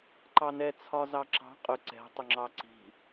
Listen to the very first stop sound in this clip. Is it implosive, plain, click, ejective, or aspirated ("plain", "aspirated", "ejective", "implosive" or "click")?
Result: click